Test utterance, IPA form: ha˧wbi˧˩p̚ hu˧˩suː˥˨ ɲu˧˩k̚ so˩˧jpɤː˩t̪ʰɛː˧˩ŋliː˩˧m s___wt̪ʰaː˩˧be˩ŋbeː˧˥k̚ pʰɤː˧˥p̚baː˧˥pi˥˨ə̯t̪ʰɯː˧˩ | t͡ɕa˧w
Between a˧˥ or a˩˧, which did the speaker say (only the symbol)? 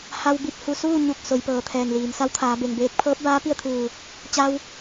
a˧˥